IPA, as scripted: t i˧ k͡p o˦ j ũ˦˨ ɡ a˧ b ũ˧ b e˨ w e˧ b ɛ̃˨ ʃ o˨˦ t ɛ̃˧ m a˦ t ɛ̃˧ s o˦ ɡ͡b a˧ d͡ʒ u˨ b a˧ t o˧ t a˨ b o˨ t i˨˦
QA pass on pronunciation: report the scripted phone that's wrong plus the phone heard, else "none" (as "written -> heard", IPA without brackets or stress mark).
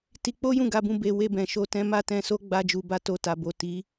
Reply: none